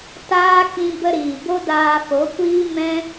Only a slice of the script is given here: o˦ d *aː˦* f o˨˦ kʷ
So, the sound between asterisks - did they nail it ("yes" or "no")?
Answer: no